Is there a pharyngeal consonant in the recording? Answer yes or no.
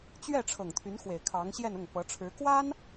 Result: no